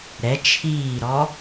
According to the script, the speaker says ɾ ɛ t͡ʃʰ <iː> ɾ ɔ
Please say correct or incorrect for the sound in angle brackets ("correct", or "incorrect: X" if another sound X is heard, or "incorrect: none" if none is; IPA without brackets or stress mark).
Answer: correct